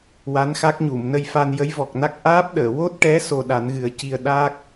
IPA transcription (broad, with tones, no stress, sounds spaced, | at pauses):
w a˧˥ n x a˦˥ k̚ ɲ u˨˩˨ m n ə˧ j f a˧ n j ə˧˥ j v ɔ˨˩ k̚ n a˦˥ k̚ ʔ aː˦˥ p̚ ɗ əː˨˩˨ w o˦˥ t̚ ʈ ɛ˧˥ s o˧ ɗ a˨˩˦ n ɣ ɨ˨˩˦ ə̯ c i˧ ə̯ ɗ a˦˥ k̚